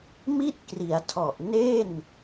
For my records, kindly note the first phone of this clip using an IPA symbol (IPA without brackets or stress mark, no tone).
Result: m